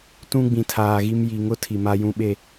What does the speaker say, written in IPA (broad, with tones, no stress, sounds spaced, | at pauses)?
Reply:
t ũ˦ ɡ͡b ĩ˨ tʰ aː˨ ɣ i˦ m j i˨ ŋ ʊ˦ tʰ i˨ m a˦ j ũ˦ ɓ e˦